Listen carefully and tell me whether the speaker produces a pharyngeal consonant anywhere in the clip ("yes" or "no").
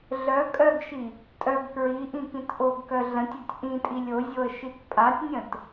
no